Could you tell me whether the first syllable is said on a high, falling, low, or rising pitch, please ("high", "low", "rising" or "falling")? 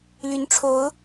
rising